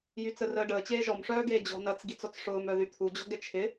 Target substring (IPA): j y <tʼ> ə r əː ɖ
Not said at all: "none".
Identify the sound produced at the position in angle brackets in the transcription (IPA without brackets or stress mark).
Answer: t͡s